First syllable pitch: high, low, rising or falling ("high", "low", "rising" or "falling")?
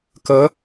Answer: rising